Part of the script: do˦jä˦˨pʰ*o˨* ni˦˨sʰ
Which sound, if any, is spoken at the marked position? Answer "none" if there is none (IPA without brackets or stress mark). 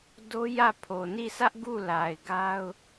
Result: o˨